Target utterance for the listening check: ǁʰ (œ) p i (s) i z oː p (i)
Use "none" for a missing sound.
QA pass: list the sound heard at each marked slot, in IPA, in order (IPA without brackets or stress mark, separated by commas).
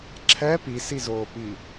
ɛ, s, i